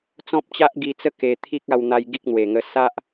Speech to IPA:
t͡s ɔ̃˦ p̚ t͡ɕ a˦ ʔ ɡ i˧ t͡s ə˦ k e˧ t̪ʰ i˦ k̚ a˧ w n̪ a˧ j ɡ i˦ k̚ n̪ w e˨˩ ŋ ə˧ s a˦ ʔ

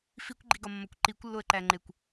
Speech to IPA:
f i kʷ ɡ͡ǃ i ɡ ɒ mː ɒ kʷ ǃ i kʷ lː o ə̯ ǃ æ ŋ͡ǃ e kʷ

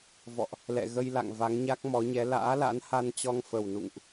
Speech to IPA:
v ɔ̰˧˨ ʔ | l ɛ̰˧˨ ɣ ə˧ j l a̰˧˨ ŋ v a˨˦ ŋ ɲ a˦˥ k̚ m ɔ˨˦ ɲ ɛ˨˦ l a̰ː˧˥ l a̰˧˥ n h a˧ n t͡ɕ ɔ˧ ŋ f ə˨˩ w n ṵ˧˨ ŋ ʔ

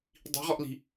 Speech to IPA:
dˤ i̤ ʁ ɔ ʔ l i̤

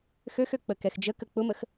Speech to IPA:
x ø x ø k͡p ə k ɛ x d͡ʒ ə k ə k͡p ʊ m ə x

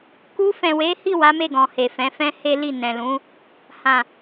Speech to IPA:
k u˧ f ɛ̃˨ w e˨˦ h i˦˨ w a˨˦ m e˦˨ ɡ ɔ̃˨ h e˨ f ɛ̃˨˦ f ɛ̃˦ h e˦ l i˦˨ n ɛ̃˨ l ũ˨˦ | h ã˨

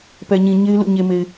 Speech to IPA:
p ɛ˨ ɲ ĩ˨ ɲ e˦ ɪ̯ l ṵ˦˨ ɲ e˨ m e˨ ɪ̯

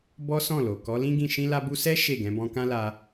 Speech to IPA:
b ɔ˦ s ɔ̃˦˨ l o˨ k ɔ˨˦ l ĩ˦ ɡ ĩ˦˨ ʃ ĩ˧ l a˧ b u˧ s ɛ˦ ʃ e˦˨ ɡ ɛ̃˨˦ b ɔ̃˧ k ã˦ l a˧

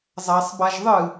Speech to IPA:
zˤ a sˤ b a ʒ ðˤ ɨ

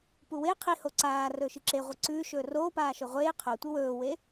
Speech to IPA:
p u w e qʰ i h o ǀ aː r ɵː ʃ ɨ ǁ e ʁʷ i ǀ ʉː ʃ ɵː r oː p aː ʃ o ʁʷ eː qʰ o tʷ ɨ w ɵː w e

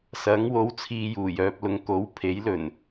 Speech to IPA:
s ɐ˨˥ ŋ w o˨˥ w t͡sʰ iː˧ j uː˨˩ j œː˧ p̚ l ʊ˨˧ ŋ k o˨˥ w pʰ e˨˥ j l ɵ˨˩ n

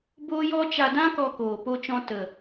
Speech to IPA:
b oː˦ j ɔ˦ t͡ʃ a˧ d ã˦ k ɔ˧ k oː˨ p o˧ t͡ʃ ɔ̃˧ t ə˨

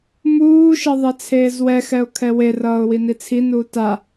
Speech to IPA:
m uː ʃ ʌ ðˤ ɛ t͡sʰ eː z w ɛ x ɛ ʊ̯ kʰ ɛ w e r ʌː ʊ̯ w i n i t͡sʰ i n uː t a

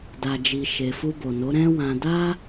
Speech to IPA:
d a˨ d͡ʒ i˨ ʃ e˨ f u˧ b o˨ n o˨˦ ɾ ɛ̃˦ w ã˧ d a˦

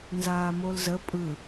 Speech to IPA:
n z aː m o l z ə pʼ ɯ

